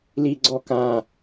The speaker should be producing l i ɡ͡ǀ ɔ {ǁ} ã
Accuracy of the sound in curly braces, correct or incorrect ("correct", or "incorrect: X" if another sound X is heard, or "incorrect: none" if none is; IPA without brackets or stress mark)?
incorrect: k